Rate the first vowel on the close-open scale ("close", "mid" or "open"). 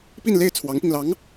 close